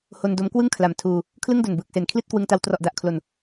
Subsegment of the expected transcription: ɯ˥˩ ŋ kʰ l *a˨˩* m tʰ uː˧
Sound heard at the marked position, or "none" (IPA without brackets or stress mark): a˨˩